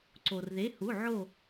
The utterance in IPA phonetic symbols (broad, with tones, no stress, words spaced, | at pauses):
ǀo˩rðe˩˧˩hu˩˧˩ ʕo˦˨